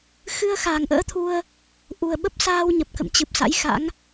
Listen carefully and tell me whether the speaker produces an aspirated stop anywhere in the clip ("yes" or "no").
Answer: yes